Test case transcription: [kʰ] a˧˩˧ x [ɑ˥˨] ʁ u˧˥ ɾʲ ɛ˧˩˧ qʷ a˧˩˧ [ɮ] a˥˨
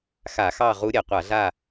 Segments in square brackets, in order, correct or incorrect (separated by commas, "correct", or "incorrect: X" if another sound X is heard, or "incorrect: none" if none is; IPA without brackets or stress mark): incorrect: x, correct, correct